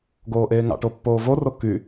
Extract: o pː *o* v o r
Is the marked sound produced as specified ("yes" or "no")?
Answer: no